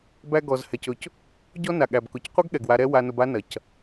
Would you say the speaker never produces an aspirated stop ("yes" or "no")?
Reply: yes